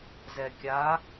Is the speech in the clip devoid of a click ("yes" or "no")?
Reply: yes